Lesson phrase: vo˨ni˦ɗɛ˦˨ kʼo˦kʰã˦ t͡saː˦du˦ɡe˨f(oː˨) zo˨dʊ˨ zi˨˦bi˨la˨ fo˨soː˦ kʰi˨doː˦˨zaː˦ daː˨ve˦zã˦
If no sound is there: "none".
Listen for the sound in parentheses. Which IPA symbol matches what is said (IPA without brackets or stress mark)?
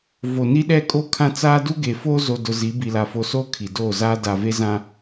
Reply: oː˦